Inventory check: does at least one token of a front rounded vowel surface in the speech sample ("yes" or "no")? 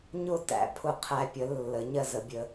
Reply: no